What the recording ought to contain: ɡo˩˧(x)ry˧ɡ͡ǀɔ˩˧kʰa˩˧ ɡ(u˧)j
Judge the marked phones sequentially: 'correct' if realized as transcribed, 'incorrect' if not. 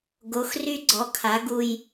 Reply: correct, correct

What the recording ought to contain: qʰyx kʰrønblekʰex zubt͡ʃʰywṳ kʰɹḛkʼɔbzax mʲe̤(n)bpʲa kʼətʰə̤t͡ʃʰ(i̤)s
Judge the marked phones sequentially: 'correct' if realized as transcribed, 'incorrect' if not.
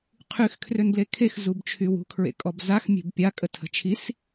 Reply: incorrect: none, incorrect: i

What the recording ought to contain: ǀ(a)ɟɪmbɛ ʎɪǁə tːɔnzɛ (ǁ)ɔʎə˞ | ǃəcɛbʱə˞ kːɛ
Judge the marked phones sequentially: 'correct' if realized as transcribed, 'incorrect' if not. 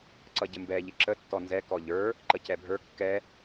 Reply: incorrect: ʌ, incorrect: k

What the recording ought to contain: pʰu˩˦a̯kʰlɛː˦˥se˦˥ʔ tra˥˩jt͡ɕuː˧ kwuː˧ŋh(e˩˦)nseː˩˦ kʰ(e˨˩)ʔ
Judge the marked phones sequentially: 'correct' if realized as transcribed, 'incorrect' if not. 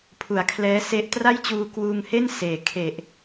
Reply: incorrect: e˥˩, correct

